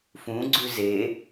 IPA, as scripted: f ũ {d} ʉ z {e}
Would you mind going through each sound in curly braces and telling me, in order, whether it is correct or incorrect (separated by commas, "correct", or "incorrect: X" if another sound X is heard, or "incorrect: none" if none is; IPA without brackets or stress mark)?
incorrect: ɡ͡ǀ, correct